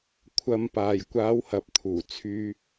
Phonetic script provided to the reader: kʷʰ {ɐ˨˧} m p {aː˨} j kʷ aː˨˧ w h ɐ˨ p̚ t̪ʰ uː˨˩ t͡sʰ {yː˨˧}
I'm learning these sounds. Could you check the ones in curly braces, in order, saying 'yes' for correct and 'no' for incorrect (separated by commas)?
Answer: yes, yes, no